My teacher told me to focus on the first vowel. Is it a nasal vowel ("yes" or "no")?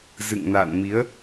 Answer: no